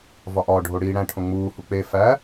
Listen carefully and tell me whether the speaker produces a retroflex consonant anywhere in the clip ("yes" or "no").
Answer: yes